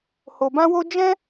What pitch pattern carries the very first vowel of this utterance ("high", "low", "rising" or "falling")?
low